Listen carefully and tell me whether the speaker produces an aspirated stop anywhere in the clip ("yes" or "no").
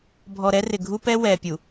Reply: no